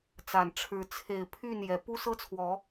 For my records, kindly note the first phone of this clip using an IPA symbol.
t͡s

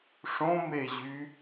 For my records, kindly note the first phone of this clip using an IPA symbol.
ʂ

